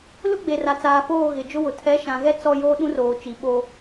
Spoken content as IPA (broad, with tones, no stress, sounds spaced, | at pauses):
l ʊ˦ ɡ͡b e˨ r a˨ t͡s aː˨ f oː˦˨ ɣ ɪ˨ d͡ʒ ʊ˦ w ʊ˨ tʰ ɛ˨˦ ʃ ã˨ ɣ ɛ˦ t͡s ɔ˦ j oː˦ ɗ ũ˦ r oː˨ t͡ʃ i˨ ɓ o˦